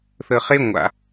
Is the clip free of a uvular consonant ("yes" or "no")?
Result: no